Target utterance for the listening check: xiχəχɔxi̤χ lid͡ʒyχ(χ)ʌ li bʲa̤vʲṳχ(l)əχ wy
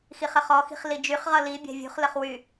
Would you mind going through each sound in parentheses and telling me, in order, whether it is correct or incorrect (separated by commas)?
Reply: incorrect, correct